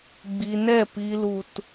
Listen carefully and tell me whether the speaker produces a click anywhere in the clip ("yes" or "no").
no